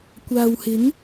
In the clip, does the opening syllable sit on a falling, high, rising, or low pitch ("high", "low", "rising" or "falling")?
low